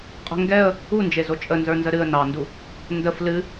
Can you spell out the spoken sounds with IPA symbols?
qʼ ə̤ ŋ ɡ ɛ ə̯ | u n d͡ʒ e z o t͡ʃʼ ə n z ə˞ n z ə ɾ ɨ ə̯ n ɑ n d u | n d ə f l ɨ

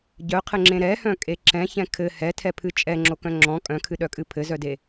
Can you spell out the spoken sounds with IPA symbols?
ɟ œ qʰ ɘ ŋ͡ǁ ẽ ɾ ɛ h œ̃ kʼ e ǁ ɛ̃ ç ɛ̃ kʰ ɘ h ɛ tʰ ɛ pʰ ɨ t͡ʃʼ ɛ ŋ͡ǁ o k œ̃ ŋ͡ǁ ɔ̃ kʼ œ̃ kʰ ɨ ɗ œ kʼ ɨ pʰ ɘ z œ d e

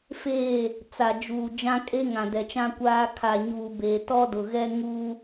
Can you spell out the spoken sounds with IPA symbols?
f eː˦˨ | t͡s a˨ d͡ʒ uː˨ d͡ʒ ã˦ kʼ e˦ ŋ ã˨ d ɛ˨ t͡ʃ ã˦ kʷ aː˦ kʰ a˨ ɲ uː˨ b eː˨ t ɔ˦ d ʊ˨ ɣ ɛ˦ ŋ uː˦

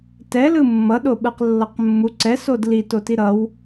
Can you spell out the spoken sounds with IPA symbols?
t ɛ l ɯ mː ʌ ɗ o ɓ ɯ q lː ʌ q mː u ǀ ɛ s o d l i t o t i ɾ ʌ w

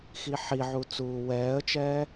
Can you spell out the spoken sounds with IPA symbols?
x i ħ i ʕ u t͡s uː w ɛː ə̯ t͡ʃ ɛː

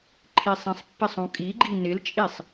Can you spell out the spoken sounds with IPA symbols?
ǃʰ i sˤ ĩ sˤ pː ɪ sˤ ũ kʼ i ɡ͡ǃ i n ɪ l t͡ʃʼ i sˤ

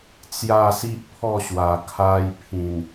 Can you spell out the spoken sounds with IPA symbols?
t͡s j a˥˧ s i˦ ʔ pʰ ɔ˥˧ ɕ w a˨˩ kʰ a˧ j pʰ ĩ˨˩ n

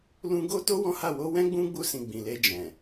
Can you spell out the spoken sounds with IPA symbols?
l ũ˦ ɡ o˦ t o˦ w ɔ̃˦ h a˦˨ w o˧ w ɛ̃˦ ɡ͡b ũ˦ ɡ͡b u˧ s ĩ˨ ɡ͡b ĩ˨ l e˧ d͡ʒ ɛ̃˨

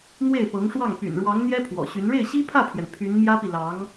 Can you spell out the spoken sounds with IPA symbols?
n̪ w e˥˩ ɪ̯ p ɤ˧˥ ŋ ʂ w ɑ˥˩ ŋ p y̰˨˩ n ɻ w ɑ˧˥ ŋ n̪ j ɛ˥ pʰ w ɔ̰˨˩ ɕ y˧˥ n ɻ e˥˩ ɪ̯ ɕ i˥ pʰ ä˥˩ pʰ j ɛ˩ n pʰ y˧˥ n m j ä˥ p i˨ l ɑ˧˥ ŋ

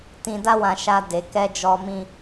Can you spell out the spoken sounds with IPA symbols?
t ĩ˧ d a˦ w ã˧ ʃ a˧ d e˨ k ɛ˧ d͡ʒ ɔ˧ m ĩ˧

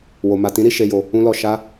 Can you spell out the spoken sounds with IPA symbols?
w o˨ m a˨ t ĩ˨˦ ɾ i˦˨ ʃ e˨ j o˨ | ũ˧ l ɔ˨ ʃ a˧

